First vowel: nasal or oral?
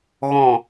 nasal